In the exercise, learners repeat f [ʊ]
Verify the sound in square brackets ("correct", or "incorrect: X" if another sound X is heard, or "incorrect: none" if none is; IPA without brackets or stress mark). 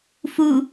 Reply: incorrect: u